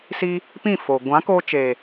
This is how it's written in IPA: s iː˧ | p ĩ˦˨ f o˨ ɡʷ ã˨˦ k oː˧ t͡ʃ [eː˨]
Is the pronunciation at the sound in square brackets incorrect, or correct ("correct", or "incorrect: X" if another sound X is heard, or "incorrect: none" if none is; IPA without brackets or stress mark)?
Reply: correct